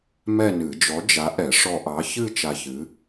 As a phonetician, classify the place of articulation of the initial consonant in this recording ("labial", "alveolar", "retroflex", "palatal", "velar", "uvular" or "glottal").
labial